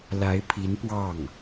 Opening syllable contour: rising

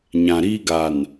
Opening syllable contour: low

